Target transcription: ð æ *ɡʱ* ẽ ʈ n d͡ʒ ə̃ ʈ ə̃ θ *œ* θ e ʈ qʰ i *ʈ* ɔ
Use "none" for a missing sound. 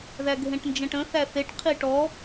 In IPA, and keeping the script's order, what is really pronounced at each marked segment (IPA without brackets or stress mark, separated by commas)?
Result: ɡʱ, æ, ʈ